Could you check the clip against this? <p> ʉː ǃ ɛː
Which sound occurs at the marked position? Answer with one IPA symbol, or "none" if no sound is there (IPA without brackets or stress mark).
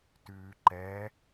t